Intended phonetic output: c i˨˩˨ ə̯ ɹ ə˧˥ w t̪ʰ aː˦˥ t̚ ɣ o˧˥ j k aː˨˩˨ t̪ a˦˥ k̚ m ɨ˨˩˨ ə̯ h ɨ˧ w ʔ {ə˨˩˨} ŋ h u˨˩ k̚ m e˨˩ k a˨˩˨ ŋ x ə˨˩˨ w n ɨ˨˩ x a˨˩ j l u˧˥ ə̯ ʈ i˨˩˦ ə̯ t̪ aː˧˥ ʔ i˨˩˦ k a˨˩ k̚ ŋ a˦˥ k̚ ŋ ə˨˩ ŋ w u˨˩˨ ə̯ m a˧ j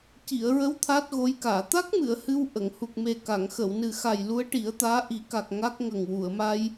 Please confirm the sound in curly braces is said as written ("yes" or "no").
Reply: yes